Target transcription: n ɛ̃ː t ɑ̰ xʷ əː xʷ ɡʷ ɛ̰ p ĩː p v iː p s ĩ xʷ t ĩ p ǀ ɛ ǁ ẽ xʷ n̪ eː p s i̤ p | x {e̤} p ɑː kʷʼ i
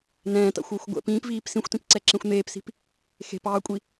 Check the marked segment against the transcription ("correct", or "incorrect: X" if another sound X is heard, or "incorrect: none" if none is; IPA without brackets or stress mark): correct